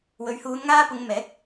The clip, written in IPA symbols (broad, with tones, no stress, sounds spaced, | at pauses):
w ɵ˨ ɥ h uː˨˧ n ŋ aː˧ p ʊ˨˧ ŋ m ɛː˨˥ k̚